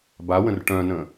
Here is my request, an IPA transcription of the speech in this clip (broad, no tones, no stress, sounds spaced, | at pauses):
b a w ə̃ r ʈ œ̃ n ə̃